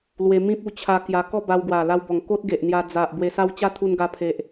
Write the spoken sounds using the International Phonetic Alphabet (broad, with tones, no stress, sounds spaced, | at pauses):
l w e˧ m ĩ˦ p̚ u˧ t͡ɕʰ a˧ k j a˧ k ɔ˥˧ b a˧ w ɡ w a˨˩ l a˧ w b ɔ˨˩ ŋ k o˦ t̚ ɡ e˨ ʔ n̪ j a˧ d͡z a˨ ʔ b w e˧ s a˦ w t͡ɕ a˦ t̪ʰ u˧ n ɡ a˧ pʰ e˨ ʔ